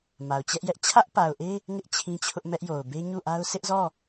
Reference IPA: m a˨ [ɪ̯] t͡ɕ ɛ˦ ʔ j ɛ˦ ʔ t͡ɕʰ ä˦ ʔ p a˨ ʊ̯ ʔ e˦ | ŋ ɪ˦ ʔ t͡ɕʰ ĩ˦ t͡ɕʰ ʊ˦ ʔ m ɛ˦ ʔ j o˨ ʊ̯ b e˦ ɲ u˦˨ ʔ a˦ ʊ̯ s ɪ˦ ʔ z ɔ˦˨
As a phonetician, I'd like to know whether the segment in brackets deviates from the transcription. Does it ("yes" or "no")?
yes